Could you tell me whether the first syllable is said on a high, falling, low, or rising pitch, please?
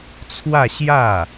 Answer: falling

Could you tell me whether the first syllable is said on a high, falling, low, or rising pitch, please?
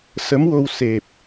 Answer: rising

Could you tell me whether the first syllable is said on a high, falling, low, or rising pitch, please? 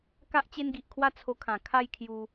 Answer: high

